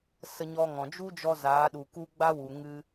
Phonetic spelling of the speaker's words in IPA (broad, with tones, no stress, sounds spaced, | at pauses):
s ə˧ ɲ ɔ˧ ŋ ɔ̃˨ d͡ʒ u˦ d͡ʒ ɔ˧ z aː˨˦ ɗ u˨ k u˦ ɡ͡b a˦ w u˨ ŋ ɨ˧